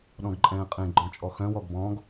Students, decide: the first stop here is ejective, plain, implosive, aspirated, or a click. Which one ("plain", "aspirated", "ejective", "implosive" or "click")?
implosive